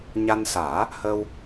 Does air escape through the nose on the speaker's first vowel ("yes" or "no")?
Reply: no